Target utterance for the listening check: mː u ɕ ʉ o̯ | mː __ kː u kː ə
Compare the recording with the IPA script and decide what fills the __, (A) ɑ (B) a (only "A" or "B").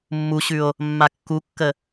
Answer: B